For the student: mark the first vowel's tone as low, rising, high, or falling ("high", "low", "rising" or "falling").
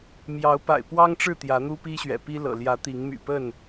rising